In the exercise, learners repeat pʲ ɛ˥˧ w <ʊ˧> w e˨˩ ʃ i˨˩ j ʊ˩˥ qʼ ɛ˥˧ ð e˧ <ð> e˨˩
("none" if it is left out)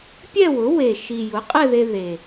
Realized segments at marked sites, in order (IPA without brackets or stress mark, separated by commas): ʊ˩˥, ð